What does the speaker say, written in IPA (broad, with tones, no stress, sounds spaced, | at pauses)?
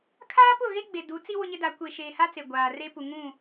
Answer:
kʰ aː˦ p ʊ˦˨ ɣ e˦ ɡ͡b e˨ d u˨˦ t͡s i˦ w ʊ˦ ɲ ɪ˦ d a˨˦ kʷ e˨ ʃ eː˨ h a˦ t͡s e˨ ɡʷ aː˨ r e˦ p u˨ ŋ ũ˦˨